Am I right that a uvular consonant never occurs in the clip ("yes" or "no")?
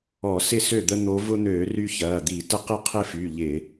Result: no